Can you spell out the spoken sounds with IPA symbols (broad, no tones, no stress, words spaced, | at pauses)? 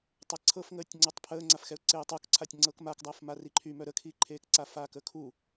tˤɛǀʰɤfŋəːtʲ ŋ͡ǀœtˤpʰəːŋ͡ǀafxɛʊ̯ ǀeːtˤukǀʰatʲ ŋ͡ǀɤkmakdˤəːf mariǃʰymœ ɾəkʰiǃʰeːkǀa faːkəkʰu